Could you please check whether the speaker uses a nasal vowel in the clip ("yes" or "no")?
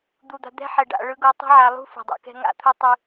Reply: no